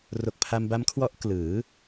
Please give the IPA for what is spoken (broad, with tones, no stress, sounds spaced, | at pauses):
r o˨˩ k̚ pʰ a˧ m b a˦˥ m kʰ w ɔ˦˥ ʔ k l ɯː˩˦